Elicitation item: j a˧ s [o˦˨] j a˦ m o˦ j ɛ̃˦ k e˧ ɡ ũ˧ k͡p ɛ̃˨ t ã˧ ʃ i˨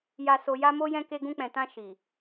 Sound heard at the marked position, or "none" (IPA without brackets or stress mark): o˧